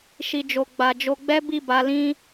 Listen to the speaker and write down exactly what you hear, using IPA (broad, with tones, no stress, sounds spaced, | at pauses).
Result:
ʃ i˨ d͡ʒ o˨ ɡ͡b a˨ d͡ʒ o˧ ɡ͡b ɛ˦ b i˦˨ b a˧ l ĩ˦